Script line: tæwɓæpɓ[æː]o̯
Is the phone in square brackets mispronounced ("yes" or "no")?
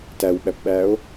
no